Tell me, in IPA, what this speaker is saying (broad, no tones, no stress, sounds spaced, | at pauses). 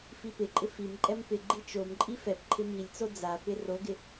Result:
f i p ɪ ǃʼ ɪ f i m ǃʼ ɛ m p ɪ ɡ͡ǃ i t͡ʃ o m ǃʼ i f ɛ p ǃʰ ɪ m i lʲ t͡s o d͡z a p ɪ r o ɡ ɪ